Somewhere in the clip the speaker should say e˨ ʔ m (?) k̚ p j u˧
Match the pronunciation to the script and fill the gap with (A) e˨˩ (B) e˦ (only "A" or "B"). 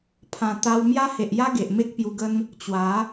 B